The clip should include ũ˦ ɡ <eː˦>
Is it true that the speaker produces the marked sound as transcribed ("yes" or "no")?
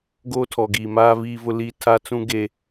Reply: no